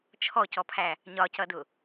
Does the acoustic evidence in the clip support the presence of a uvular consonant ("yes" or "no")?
no